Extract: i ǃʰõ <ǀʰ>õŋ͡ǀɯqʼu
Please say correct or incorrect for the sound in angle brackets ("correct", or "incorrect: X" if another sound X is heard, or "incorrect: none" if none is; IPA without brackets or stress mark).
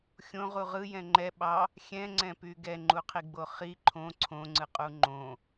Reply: correct